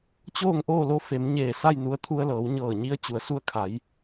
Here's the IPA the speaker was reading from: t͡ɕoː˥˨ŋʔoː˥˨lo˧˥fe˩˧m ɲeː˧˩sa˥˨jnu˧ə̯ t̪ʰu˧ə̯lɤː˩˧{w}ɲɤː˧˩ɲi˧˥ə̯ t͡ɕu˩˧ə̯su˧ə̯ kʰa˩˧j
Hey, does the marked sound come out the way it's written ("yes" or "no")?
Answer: yes